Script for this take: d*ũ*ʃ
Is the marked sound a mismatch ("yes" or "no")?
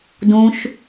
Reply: no